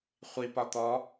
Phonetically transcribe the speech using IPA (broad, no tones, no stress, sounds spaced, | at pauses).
χʷ i p ɒ t̪ ɔ